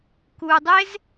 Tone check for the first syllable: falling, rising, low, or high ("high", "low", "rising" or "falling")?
low